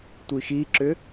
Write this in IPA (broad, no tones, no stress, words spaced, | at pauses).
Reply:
tʷixiǁʏ